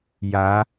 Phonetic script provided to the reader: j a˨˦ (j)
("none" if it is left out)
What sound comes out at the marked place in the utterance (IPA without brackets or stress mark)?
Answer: none